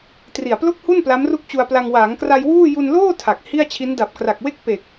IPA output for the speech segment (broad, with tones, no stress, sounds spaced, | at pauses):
t r i˨˩ a̯ p l o˥˩ k̚ h u˥˩ n p l a˦˥ m r u˥˩ k̚ t͡ɕ u˧ a̯ p l a˧ ŋ w aː˩˦ ŋ k r a˧ j w uː˥˩ j u˧ n l oː˥˩ tʰ a˨˩ k̚ h i˥˩ a̯ t͡ɕʰ i˦˥ n d a˨˩ p̚ k r a˨˩ k̚ w e˥˩ k̚ p e˨˩ k̚